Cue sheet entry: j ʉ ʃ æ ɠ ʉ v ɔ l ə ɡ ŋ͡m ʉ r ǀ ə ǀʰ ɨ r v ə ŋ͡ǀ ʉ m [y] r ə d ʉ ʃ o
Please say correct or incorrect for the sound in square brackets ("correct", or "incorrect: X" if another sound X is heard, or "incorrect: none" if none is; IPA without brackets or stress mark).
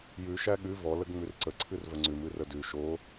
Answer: incorrect: ɨ